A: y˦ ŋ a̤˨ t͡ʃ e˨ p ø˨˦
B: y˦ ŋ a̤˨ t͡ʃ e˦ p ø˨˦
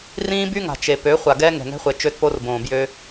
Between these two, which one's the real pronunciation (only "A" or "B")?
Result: A